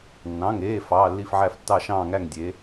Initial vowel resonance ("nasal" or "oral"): nasal